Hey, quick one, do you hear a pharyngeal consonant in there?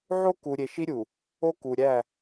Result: yes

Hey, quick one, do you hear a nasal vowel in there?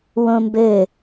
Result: yes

